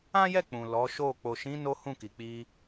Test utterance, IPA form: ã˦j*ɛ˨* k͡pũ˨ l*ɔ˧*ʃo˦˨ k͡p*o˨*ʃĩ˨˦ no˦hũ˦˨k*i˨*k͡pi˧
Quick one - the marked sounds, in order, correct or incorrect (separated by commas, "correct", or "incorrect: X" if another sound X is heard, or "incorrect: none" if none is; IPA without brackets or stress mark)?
incorrect: ɛ˦˨, incorrect: ɔ˨˦, correct, correct